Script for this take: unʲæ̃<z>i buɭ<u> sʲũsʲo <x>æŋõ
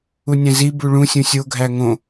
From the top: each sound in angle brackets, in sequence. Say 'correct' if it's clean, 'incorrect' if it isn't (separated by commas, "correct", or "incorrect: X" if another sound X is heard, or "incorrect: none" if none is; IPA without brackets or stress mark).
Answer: correct, incorrect: ũ, incorrect: ɡʱ